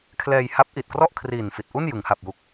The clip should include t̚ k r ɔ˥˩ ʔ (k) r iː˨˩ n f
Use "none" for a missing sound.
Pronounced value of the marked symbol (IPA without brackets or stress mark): kʰ